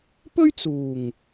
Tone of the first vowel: high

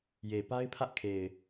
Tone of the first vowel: low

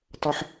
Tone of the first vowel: high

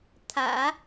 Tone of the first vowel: low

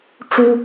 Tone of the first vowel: high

